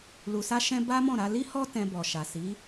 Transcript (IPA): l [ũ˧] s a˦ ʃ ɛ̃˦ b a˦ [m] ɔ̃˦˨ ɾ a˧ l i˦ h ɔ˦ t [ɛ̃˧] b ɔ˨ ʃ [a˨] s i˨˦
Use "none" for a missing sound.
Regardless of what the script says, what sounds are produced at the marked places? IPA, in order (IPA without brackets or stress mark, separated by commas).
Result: u˧, m, ɛ̃˧, a˨